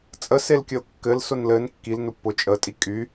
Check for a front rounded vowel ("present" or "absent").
present